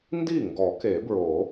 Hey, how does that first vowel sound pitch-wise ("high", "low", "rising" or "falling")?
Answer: falling